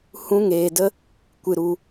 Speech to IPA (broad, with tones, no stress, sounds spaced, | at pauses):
h ũ˦ ŋ eː˧ d ə˦ | kʷ ɨ˧ ɾ u˧